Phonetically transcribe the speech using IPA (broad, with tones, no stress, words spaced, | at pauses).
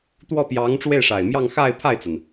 t̪wɔ˥˩pjɑ˧˥ŋʈ͡ʂwe˥˩ɪ̯ʂa˨˩ɪ̯ mjɑ˥˧ŋxa˥˧ɪ̯ pʰa˥˩ɪ̯t͡sa˩n